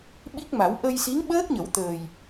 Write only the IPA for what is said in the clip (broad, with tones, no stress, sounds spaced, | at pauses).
ɓ i˦˥ k̚ m a˨˩˦ w ʔ ə˧ j s i˧˥ ŋ ɓ əː˦˥ k̚ ɲ ə˨˩˦ w t̪ əː˨˩ j